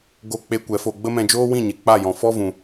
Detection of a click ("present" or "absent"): absent